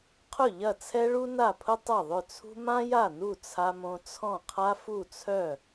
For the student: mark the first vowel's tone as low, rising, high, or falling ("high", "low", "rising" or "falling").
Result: falling